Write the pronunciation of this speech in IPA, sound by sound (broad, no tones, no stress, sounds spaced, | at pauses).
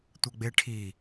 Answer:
tʷ ɐ ɡ͡b e ʈʰ i